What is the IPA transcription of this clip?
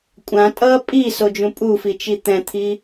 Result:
kʷʼ ã tʼ ʌ pʼ i s o d͡ʒ ũ pʼ u f i t͡ʃ i t̪ ɛ̃ t̪ʰ i

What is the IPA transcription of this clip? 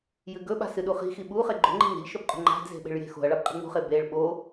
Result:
j ɨ ɡ ɵ ɓ a̤ s ɨ ɗ u χ i̤ x i ɓ u χ e ɡ͡ǃ o̤ ŋ͡ǃ i̤ ŋ e̤ ʎ ʃ ɵ b qʼ ṳ ŋ͡ǃ a̤ d z e̤ ɓ e̤ ɭ j e̤ x o̤ ɐ̯ ɭ a b qʼ i̤ ŋ͡m ṳ χ e b e ɭ ɓ o

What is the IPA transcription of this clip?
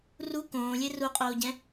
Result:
r u k õː lʲ e r u qʼ oː ɟ ɛ̃

